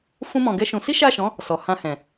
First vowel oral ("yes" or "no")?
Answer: no